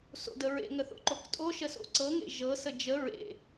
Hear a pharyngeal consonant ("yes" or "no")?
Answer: no